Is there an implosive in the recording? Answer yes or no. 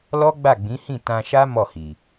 no